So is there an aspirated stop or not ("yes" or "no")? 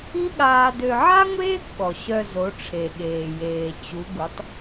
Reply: yes